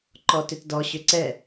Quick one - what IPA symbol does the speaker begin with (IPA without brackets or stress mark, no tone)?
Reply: ǃ